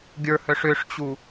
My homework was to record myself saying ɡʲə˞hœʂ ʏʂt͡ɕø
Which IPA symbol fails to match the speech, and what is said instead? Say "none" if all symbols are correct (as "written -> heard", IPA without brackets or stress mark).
ø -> u